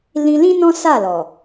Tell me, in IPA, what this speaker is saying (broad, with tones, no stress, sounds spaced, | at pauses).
l ĩ˧ l ĩ˦ n ɔ̃˦ s a˦˨ l ɔ˨